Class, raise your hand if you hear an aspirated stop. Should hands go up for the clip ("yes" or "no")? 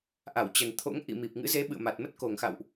yes